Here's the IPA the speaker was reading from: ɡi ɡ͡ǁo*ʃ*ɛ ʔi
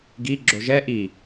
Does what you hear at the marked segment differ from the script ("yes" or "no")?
yes